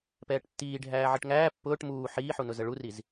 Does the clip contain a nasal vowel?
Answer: no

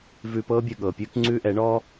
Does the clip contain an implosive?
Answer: yes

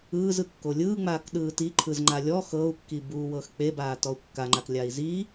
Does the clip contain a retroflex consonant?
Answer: no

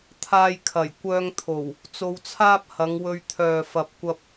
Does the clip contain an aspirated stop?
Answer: yes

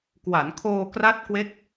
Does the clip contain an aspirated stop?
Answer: yes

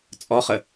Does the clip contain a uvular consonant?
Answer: yes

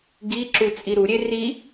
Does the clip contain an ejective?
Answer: yes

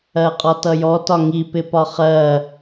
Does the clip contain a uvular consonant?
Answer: yes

